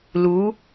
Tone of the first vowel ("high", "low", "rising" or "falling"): rising